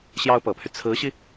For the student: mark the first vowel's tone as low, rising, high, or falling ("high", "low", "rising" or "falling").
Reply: high